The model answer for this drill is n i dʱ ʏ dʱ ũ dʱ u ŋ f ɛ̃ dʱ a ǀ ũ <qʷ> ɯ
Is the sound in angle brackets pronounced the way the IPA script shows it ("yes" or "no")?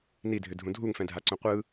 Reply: yes